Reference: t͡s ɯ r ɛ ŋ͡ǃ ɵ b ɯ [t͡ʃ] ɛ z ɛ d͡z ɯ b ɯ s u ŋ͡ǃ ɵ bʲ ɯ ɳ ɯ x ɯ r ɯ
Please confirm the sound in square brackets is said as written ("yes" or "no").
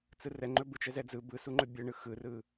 yes